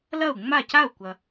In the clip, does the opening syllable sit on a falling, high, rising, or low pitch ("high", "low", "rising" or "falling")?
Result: falling